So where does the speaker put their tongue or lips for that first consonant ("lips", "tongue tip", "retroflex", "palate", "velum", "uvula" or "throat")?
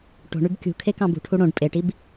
retroflex